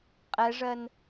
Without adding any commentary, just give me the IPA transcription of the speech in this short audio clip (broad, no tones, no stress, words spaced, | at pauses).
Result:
qʼɛʐɜn